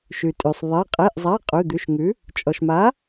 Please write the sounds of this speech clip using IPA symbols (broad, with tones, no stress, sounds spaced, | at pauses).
ʃ ʉ˩ tʼ ʉ˩ sˤ ðˤ e˩˧˩ qʼ e˩˧˩ ʔ zˤ a˩˧˩ qʼ ʉ˩˧˩ d̪ ʉ˩˧˩ ʃ ŋ ʉ˩˥ | t͡ʃʼ ɔ˩ ʃ m a˩˥